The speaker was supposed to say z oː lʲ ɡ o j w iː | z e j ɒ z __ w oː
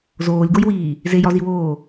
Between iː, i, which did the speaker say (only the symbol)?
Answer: i